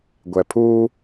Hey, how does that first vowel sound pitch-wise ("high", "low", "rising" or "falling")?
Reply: low